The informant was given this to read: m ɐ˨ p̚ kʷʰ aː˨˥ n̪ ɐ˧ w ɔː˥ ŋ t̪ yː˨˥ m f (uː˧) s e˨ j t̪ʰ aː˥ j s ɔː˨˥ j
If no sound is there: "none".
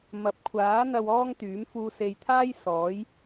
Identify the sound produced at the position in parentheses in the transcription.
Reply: uː˧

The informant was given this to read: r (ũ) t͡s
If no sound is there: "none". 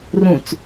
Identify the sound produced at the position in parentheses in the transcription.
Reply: ũ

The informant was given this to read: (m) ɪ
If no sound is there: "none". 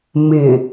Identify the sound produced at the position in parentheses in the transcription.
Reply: m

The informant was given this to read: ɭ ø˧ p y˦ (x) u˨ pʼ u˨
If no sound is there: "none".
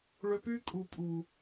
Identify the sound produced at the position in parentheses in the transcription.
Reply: kʼ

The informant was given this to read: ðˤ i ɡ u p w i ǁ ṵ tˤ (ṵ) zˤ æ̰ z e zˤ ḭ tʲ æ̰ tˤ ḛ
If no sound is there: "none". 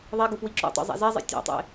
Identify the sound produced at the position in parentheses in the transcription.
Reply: o̰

